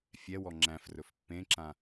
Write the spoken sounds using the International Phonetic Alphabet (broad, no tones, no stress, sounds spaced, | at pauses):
fʲ ɛ w ɔ ŋ͡ǁ æ̃ f r ɵ f pː ẽ ǁ ã